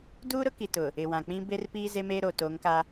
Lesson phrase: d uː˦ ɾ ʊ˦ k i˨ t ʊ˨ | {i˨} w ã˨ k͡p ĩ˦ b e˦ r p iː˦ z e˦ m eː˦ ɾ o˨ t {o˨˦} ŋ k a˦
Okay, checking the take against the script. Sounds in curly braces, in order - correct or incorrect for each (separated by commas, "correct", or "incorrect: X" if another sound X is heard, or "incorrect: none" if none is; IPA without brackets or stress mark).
incorrect: ɪ˨, correct